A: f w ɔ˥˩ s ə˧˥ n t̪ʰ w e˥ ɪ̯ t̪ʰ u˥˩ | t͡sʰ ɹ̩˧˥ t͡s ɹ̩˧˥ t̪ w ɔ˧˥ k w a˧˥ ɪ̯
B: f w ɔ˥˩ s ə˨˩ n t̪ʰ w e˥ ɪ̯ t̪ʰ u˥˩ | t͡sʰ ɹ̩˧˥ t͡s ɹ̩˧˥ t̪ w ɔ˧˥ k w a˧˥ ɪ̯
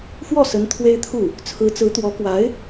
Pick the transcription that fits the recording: A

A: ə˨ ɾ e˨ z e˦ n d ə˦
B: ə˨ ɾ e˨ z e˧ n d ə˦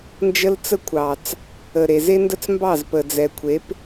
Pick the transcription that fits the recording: A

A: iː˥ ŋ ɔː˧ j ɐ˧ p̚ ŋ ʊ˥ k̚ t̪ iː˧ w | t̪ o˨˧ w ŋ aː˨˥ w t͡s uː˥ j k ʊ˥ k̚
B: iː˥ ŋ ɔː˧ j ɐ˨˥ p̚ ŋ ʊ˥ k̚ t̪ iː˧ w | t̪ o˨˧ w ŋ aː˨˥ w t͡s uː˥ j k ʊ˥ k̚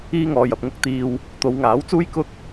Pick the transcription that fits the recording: A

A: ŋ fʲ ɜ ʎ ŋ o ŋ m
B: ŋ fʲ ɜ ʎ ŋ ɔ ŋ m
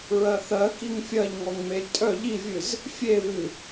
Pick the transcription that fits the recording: B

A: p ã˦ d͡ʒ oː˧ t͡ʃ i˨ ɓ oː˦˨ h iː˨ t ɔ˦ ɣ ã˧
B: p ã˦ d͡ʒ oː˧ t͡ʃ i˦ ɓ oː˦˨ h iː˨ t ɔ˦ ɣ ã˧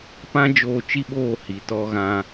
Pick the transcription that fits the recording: B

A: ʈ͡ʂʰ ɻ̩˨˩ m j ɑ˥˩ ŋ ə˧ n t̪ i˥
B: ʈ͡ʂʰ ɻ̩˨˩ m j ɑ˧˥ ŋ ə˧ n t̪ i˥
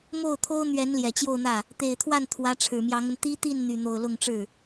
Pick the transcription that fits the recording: B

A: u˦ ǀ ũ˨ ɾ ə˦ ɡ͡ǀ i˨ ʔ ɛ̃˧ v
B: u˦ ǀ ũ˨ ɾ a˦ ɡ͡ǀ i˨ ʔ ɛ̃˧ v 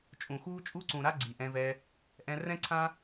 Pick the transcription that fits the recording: B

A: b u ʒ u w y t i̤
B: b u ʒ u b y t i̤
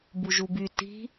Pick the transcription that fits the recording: B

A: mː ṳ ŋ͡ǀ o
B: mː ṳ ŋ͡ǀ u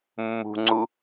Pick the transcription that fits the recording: B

